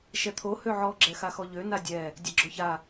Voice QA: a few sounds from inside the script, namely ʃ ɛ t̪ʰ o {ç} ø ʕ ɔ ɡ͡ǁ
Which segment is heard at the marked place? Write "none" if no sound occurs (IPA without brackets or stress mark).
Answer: h